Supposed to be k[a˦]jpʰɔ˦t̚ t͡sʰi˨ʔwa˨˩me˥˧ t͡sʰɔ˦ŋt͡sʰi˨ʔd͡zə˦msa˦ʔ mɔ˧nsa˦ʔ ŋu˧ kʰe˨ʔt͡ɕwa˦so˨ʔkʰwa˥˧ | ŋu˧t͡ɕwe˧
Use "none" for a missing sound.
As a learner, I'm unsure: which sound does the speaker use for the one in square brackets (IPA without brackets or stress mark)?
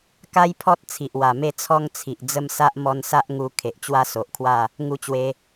a˦